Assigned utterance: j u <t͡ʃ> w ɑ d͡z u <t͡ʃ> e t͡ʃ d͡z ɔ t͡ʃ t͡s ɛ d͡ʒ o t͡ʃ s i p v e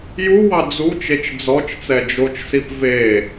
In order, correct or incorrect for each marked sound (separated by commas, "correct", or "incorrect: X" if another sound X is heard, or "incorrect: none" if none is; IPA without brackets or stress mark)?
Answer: incorrect: none, correct